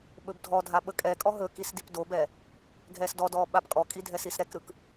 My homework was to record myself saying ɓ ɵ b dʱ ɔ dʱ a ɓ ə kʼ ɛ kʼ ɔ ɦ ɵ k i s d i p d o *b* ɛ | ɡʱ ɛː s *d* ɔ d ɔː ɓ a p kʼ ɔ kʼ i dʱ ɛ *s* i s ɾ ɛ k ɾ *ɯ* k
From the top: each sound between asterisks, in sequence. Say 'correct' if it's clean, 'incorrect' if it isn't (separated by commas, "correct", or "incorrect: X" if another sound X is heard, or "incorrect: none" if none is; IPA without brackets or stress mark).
correct, correct, correct, correct